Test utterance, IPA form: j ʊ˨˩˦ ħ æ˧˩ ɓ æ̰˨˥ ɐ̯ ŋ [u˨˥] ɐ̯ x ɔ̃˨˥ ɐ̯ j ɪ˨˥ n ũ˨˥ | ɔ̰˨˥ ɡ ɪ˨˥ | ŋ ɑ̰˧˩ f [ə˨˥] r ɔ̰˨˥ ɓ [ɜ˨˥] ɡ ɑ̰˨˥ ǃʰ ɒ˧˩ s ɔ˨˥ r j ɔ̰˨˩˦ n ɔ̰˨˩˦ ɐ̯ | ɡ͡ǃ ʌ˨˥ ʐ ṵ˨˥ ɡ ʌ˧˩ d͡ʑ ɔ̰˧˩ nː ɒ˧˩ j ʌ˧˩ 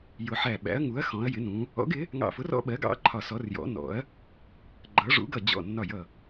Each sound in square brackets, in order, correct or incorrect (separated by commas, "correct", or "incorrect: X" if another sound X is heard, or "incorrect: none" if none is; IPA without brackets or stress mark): correct, incorrect: ʊ˨˥, correct